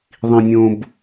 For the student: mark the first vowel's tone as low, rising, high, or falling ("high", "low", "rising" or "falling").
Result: low